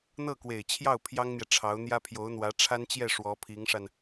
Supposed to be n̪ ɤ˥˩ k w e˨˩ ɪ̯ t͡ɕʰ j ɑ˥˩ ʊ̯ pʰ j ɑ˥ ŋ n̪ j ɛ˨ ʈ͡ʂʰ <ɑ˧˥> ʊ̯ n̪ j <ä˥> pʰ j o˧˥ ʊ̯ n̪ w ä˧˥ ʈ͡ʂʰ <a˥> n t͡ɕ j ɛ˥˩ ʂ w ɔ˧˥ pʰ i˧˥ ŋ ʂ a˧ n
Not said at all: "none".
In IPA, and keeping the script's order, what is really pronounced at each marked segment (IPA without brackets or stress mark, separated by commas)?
ɑ˧˥, ä˥, a˥